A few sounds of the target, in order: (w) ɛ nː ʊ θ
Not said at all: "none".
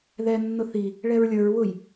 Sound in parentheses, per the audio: ð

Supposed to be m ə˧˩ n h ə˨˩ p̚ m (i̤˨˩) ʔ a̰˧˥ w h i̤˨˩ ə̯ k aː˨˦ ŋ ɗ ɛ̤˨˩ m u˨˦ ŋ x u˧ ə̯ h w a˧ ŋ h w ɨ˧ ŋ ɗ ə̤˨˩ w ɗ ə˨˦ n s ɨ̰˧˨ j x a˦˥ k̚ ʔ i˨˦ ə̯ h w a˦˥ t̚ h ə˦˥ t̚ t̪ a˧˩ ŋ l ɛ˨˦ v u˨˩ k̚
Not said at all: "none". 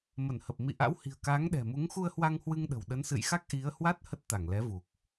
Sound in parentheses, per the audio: ḭ˧˨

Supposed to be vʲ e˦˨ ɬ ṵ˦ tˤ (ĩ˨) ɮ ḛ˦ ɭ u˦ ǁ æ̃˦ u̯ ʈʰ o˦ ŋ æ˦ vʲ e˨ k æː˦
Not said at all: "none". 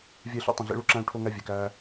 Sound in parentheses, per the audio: ĩ˨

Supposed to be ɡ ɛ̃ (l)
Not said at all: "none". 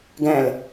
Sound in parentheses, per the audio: l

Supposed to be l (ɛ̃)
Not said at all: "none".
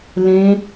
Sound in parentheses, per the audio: ẽ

